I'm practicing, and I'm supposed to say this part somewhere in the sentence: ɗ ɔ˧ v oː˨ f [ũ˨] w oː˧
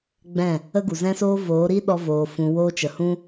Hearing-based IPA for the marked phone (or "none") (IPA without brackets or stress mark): ũ˨